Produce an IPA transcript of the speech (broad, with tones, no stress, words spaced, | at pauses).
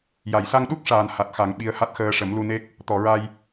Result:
ja˨˩˨jsa˧ŋɗu˦˥k̚ʂaː˨˩n ha˨˩t̚ xa˨˩˦ŋɓi˧˥ə̯ha˦˥t̚ xəː˧ʂə˨˩˦mlu˧ne˦˥k̚ | t̪ɔ˨˩˨ɹa˧j